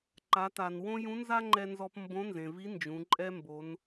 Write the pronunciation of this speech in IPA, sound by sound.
ǃa˩˧ta˩nwõ˥ jũ˧˥nza˥ŋ͡ǃɛ˧nzɔ˧p mbõ˧˥nzẽ˩vi˧˥ nd͡ʒũ˩˧ǃʼɛ˥ mbo˩˧n

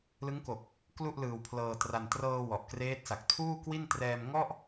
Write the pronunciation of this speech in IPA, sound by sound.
lɯ˦˥ŋko˨˩k̚ | klu˥˩ʔlɯː˧wpʰlɤː˧tra˧n trɤː˧ wɔ˨˩ʔkreː˦˥t̚sa˨˩k̚ tʰuː˥˩kwi˥˩n trɛː˧mŋɔ˥˩ʔ

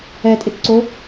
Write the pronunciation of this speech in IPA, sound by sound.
ɛtʼɪtǀo

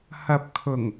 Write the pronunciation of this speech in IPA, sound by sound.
hɐ˨p̚kʰʊ˨˩ŋ

